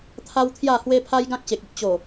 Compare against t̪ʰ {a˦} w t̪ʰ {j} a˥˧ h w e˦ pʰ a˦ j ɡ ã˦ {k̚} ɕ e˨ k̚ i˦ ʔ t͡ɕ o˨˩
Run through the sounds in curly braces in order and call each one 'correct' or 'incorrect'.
correct, correct, correct

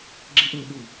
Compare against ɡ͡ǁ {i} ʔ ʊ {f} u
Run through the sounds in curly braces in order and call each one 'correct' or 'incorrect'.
correct, incorrect: ɓ

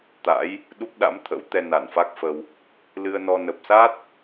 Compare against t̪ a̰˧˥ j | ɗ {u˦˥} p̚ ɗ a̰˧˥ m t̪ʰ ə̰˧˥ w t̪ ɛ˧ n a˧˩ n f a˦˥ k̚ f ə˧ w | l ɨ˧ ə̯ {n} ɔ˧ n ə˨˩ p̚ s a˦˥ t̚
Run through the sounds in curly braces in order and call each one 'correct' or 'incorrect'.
correct, correct

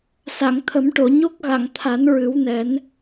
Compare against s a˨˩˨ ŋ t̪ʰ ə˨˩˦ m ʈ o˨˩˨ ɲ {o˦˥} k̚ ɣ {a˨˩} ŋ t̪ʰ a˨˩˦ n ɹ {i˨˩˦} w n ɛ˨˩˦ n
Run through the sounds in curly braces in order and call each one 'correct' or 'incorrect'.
correct, incorrect: a˨˩˨, incorrect: ɨ˨˩˦

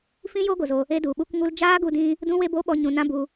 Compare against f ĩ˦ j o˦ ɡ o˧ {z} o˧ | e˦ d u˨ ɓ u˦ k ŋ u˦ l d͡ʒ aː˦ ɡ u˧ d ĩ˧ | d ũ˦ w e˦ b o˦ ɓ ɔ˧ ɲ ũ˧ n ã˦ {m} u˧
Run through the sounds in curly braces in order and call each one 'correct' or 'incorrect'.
correct, incorrect: b

